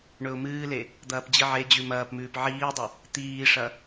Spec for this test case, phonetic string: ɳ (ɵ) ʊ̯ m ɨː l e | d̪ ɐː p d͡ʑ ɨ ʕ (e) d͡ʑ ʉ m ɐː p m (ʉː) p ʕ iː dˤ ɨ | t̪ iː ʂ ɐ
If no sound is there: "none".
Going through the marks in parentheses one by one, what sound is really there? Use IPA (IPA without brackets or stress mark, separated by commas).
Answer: ɵ, e, ʉː